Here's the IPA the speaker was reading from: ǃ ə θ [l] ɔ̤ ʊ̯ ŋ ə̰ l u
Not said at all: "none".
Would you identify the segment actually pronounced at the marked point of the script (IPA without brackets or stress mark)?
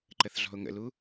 ɮ